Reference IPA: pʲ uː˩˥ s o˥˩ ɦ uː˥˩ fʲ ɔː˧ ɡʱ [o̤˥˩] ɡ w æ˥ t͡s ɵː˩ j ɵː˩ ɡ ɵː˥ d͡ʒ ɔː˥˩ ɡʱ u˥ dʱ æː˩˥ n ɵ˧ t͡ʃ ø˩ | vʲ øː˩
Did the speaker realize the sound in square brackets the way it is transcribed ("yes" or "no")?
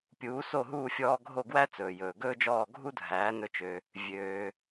no